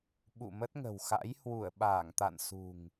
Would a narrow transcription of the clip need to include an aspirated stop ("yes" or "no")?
no